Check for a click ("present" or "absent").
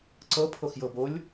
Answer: present